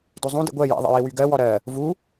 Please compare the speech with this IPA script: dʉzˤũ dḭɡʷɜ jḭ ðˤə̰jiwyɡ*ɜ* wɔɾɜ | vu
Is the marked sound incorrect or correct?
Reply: correct